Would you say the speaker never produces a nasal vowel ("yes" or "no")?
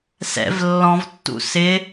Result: no